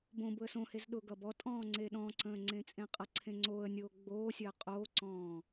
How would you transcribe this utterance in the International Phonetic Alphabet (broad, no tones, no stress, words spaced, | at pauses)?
bõ bʊə̯sõhez ɗʊ ɡʌbɔtʼɔ̃ː ŋ͡ǀeɗɔ̃ǀə̃ː ŋ͡ǀẽt͡sʼẽqʼʌǀʰẽ ŋ͡ǀoːə̯nʲoː ɡ͡boːsʲəː qʼoːǀɔ̃ː